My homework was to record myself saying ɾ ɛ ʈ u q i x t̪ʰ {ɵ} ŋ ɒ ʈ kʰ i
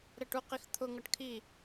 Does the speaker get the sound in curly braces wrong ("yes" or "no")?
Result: yes